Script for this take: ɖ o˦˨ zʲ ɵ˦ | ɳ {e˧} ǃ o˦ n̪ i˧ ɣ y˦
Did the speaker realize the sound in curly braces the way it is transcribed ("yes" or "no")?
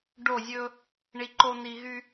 no